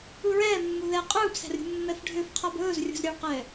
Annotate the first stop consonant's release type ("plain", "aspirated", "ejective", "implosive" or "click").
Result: ejective